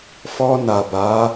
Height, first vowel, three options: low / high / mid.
mid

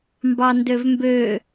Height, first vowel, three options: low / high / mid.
low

